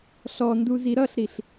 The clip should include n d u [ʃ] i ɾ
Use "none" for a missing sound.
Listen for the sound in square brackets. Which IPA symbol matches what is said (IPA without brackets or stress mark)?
z